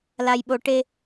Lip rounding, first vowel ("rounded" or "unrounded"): unrounded